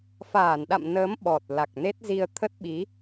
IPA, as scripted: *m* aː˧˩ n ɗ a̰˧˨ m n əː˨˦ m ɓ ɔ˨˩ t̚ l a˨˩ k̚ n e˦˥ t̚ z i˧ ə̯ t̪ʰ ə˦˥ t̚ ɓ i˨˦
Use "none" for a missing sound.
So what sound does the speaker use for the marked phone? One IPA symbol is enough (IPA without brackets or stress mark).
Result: f